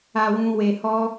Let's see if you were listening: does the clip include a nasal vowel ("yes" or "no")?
yes